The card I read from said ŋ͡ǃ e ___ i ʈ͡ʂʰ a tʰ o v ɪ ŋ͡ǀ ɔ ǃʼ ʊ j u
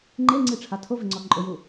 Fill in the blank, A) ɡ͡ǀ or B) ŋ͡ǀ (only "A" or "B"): B